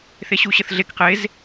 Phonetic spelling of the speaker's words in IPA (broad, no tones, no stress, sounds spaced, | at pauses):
θ e ɕ u ɕ ə θ ɮ e k q e z